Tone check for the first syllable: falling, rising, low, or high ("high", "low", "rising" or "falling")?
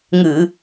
low